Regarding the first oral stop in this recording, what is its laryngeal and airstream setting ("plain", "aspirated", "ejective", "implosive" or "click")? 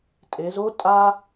ejective